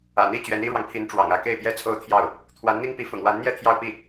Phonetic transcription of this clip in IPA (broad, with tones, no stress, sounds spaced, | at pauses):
ä̰˨˩ n̪ i˥˩ t͡ɕ ɥ ɛ˧˥ n i˥ ɻ w ɑ˨ ŋ pʰ i˧˥ n ʈ͡ʂ w ɑ̰˨˩ ŋ ä˥˧ k e˥˩ ɪ̯ p j ɛ˥ t͡sʰ o˥ ʊ̯ t̪ʰ j ɑ˥˩ ʊ̯ | t̪ʰ w a˧˥ n n̪ i˥ ŋ p i˧˥ f ʊ̰˨˩ ŋ w a˧˥ n n̪ j ɛ˥˧ t̪ʰ j ɑ˥˧ ʊ̯ p i˥˩